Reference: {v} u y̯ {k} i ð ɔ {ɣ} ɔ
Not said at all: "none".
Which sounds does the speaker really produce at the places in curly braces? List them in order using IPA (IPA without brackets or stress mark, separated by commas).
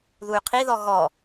ð, qʰ, ɣ